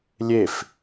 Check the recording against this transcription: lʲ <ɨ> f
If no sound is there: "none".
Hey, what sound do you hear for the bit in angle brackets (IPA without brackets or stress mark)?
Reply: e